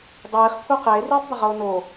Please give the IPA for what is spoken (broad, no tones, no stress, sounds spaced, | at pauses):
dˤ iː χ kʷʰ ɐ q eː r iː tˤ dˤ ɐ ʁ oː n o